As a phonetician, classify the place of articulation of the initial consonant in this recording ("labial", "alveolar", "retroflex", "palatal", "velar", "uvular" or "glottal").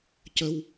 palatal